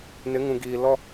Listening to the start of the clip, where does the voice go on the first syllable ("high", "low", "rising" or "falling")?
rising